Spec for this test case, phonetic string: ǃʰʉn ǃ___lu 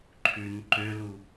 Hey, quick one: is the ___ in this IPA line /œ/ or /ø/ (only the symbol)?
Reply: ø